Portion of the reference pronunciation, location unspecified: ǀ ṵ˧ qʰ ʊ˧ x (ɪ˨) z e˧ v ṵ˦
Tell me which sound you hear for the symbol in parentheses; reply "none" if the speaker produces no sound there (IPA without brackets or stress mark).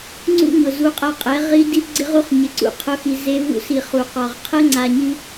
i˨